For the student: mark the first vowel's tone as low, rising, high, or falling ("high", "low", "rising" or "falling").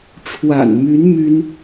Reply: low